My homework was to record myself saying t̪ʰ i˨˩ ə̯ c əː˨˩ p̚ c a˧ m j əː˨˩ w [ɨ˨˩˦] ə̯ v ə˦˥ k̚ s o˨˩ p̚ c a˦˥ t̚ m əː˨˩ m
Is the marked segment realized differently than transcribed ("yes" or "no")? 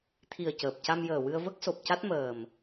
yes